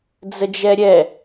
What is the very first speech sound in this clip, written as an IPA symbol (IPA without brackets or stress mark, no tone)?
d͡z